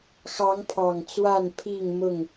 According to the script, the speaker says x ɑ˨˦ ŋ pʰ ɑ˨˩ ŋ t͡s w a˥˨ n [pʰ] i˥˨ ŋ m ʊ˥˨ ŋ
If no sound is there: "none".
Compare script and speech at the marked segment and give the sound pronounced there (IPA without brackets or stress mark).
pʰ